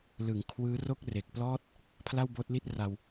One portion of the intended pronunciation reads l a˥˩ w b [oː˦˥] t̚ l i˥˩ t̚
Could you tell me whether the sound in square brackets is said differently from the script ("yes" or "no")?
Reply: no